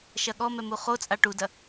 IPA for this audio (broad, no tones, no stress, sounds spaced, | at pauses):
ʃ ɐ ɠ ɔ m ɛ m u χ o t͡sʼ a ʈ u d ɐ